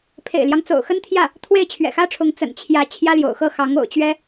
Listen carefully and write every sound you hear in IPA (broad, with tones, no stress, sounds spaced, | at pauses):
pʰ ḛ˨˩ ɪ̯ l j ɑ˦ ŋ t͡s o̰˨˩ ʊ̯ x ə˥ n t̪ʰ j ä˥˩ | t̪ʰ w e˥˩ ɪ̯ t͡ɕʰ ɥ ɛ̰˨˩ x ä˥ ʈ͡ʂʰ ʊ˧˥ ŋ t͡s ə̰˨˩ n t͡ɕʰ j ä˧˥ t͡ɕʰ j ä˥ l j o̰˨˩ ʊ̯ x ɤ˥˩ x ɑ˧˥ ŋ o̰˨˩ ʊ̯ t͡ɕ ɥ ɛ˥